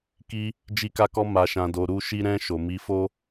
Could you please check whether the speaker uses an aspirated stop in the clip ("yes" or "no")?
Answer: no